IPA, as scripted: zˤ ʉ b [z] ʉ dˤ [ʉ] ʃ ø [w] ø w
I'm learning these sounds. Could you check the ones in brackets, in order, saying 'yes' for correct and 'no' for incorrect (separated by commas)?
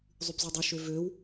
yes, no, no